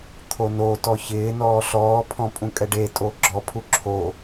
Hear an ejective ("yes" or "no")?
yes